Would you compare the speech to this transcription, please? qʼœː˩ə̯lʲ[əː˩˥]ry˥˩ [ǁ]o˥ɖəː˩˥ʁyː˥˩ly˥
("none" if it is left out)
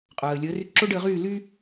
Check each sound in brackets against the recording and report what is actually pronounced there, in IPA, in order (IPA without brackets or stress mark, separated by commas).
əː˩˥, ǁ